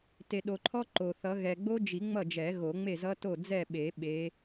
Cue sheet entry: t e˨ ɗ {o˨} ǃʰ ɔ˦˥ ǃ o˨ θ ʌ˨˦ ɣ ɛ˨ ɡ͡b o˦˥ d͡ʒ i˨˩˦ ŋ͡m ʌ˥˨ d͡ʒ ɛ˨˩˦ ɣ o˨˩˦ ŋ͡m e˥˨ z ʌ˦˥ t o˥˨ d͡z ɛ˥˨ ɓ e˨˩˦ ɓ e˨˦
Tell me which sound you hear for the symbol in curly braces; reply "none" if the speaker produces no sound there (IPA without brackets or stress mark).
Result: o˨